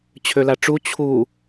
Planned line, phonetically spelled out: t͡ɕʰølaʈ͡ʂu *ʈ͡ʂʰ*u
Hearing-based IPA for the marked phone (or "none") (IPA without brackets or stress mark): t͡ɕʰ